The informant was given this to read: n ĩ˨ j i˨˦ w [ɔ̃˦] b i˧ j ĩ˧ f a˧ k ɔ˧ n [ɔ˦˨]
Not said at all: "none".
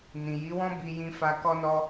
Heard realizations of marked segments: ɔ̃˦, ɔ˧

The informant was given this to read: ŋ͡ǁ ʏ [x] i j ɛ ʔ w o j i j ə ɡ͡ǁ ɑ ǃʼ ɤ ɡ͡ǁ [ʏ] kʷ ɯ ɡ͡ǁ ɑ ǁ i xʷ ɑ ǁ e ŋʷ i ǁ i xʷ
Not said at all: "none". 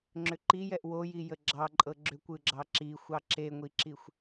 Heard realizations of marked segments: ǃ, ʏ

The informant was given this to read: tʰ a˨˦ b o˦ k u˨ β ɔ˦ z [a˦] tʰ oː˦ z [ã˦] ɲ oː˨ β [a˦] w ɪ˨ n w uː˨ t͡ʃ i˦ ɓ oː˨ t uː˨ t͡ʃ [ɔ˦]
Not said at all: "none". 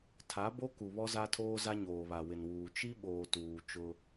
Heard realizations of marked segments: a˦, a˦, a˨, ʊ˦

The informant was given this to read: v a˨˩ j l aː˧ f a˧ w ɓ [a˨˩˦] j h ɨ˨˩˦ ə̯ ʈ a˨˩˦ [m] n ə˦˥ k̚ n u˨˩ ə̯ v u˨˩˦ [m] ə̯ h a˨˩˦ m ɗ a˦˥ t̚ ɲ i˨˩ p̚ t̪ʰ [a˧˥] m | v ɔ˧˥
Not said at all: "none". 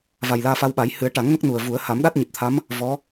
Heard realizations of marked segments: a˨˩˦, ŋ, none, a˧˥

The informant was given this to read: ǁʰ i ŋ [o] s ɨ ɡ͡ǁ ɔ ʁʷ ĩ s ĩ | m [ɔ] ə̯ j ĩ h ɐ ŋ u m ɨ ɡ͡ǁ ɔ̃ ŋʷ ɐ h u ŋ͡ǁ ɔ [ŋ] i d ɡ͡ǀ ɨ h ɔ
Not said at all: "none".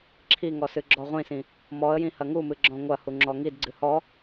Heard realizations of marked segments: ɔ, ɔ, ŋ

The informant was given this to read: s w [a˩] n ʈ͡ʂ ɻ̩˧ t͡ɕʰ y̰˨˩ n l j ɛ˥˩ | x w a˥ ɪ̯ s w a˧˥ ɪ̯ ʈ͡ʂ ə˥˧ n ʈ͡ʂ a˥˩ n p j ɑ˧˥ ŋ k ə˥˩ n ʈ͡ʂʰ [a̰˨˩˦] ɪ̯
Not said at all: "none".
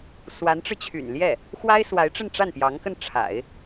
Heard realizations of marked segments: a˧˥, a̰˨˩˦

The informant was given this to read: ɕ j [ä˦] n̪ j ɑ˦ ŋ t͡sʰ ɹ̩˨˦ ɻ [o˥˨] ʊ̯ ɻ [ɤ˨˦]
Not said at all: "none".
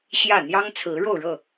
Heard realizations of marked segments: ä˥˨, o˥˨, ɤ˥˨

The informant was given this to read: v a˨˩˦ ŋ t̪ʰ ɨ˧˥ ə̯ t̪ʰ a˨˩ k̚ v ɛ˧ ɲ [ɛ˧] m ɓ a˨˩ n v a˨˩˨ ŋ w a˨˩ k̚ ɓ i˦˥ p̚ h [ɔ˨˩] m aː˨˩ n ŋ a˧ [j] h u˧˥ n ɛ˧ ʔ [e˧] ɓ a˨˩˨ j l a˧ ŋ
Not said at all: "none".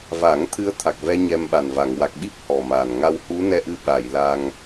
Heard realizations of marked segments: ɛ˧, ɔ˨˩, w, ɨ˧

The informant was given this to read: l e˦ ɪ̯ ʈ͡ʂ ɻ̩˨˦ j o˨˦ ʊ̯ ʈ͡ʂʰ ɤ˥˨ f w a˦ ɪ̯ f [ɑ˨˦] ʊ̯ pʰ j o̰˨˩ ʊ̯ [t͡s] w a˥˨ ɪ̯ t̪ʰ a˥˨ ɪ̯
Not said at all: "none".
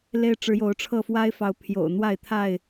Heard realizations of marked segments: ɑ˨˦, n̪

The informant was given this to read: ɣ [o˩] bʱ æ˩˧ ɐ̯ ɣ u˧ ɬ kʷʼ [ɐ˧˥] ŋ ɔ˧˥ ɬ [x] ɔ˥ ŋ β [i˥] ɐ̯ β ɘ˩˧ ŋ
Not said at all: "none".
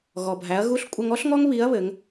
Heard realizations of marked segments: ɔ˩, ɐ˧, ŋ, i˧˥

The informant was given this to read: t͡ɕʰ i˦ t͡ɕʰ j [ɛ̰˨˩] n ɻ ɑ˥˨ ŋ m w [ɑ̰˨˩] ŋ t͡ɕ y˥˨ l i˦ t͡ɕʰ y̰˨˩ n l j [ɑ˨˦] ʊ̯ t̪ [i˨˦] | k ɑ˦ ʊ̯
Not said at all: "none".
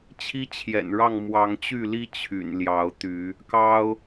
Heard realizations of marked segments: ɛ̰˨˩, ɑ˨˦, ɑ˨˦, y˨˦

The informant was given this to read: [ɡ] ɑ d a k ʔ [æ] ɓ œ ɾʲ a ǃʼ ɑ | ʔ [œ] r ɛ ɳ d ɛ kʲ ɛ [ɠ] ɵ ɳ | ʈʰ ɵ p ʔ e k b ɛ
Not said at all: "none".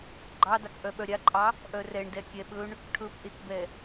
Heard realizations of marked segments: ɡ͡ǃ, œ, œ, ɓ

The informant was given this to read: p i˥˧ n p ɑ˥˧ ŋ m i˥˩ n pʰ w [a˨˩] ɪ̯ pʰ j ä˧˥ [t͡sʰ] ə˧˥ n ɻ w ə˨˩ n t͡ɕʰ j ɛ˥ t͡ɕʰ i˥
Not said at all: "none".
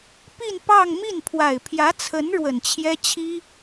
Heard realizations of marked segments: a˨˩, t͡sʰ

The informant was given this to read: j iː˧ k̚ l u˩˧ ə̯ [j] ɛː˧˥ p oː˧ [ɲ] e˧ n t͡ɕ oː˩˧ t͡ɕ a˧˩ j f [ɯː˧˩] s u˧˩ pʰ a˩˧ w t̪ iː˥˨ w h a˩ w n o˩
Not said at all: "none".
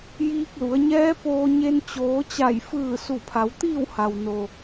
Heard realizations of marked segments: ɲ, ɲ, ɯː˧˩

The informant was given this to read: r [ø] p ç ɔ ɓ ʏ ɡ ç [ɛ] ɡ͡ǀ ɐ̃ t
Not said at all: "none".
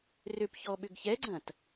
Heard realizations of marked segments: ø, ɛ

